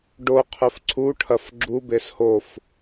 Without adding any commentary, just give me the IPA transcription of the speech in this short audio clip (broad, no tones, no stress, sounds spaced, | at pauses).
ɖ o qʰ ɵ f ǀʰ u ʈʰ ɐ f ɡ͡ǁ u b e s h o f